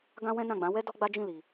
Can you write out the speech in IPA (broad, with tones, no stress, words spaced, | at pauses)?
ɡã˦wɛ̃˦nã˦˨ɡ͡bã˨˦ wɛ˦ dɔ˦ɡ͡ba˦d͡ʒĩ˦˨li˨